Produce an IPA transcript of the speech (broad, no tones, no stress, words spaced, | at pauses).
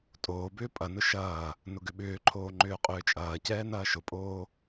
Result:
tʼoːbʏː pʼɐnʊ ʃɐː | nʊɡʏɓʏːǃʰoː ŋ͡ǃʏːqʼʏːt͡ʃʼɐːcɛː nɐːʃʊpʼoː